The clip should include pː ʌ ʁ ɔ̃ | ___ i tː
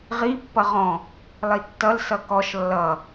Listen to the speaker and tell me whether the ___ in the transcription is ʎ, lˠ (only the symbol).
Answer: lˠ